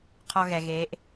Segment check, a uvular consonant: present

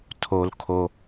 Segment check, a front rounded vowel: absent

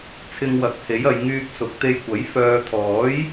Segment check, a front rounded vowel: present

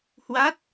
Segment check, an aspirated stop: absent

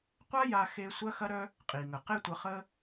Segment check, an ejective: present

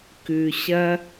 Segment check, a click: absent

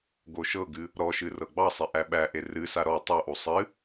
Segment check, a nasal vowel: absent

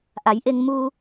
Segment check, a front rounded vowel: absent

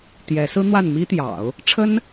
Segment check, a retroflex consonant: present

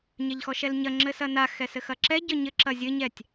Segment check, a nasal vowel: absent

